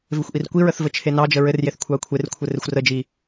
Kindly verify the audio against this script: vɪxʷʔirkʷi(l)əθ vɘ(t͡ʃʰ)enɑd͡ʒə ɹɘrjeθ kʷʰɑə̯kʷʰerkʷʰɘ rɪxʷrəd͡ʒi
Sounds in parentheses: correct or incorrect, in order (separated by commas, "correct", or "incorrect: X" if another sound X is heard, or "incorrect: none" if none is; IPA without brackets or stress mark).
incorrect: ɹ, correct